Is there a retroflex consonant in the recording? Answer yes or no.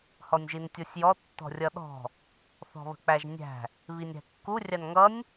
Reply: no